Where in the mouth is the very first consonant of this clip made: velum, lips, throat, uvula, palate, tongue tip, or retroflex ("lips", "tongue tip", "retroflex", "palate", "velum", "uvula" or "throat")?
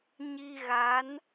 palate